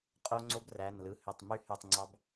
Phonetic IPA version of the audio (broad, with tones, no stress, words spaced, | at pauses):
qʼo˦˥ ŋ͡ǀo˦˥bræ˩˧˩nlɯ˩˧˩ hø˧˩tˤ my˦˥hy˧˩tˤŋ͡ǀɑ˦˥b